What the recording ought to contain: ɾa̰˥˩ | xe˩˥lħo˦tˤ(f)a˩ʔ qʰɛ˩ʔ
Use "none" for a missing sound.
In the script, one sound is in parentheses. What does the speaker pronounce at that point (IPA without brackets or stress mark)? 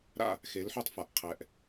f